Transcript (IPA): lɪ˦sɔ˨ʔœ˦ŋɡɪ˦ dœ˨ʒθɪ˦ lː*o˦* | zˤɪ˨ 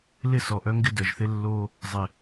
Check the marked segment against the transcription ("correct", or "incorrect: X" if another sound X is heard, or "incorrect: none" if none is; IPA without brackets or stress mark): correct